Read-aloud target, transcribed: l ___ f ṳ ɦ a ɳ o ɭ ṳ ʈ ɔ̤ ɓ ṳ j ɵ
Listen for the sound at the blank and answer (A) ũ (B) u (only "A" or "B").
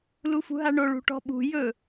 B